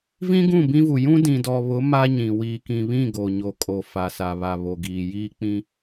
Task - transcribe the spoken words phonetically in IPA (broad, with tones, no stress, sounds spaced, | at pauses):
v ĩ˦ ɡ ũ˦˨ b ĩ˦ v u˨ j ũ˦ d ĩ˨ d ɔ˨ β ʊ˨˦ m a˦ ɲ ĩ˨ w iː˨ k ĩ˨ β ĩ˦˨ ɡ o˨ ɲ o˨ kʼ o˨ f a˨ s a˨ β a˨ β o˨ ɡ iː˨ j iː˦ k͡p ĩ˦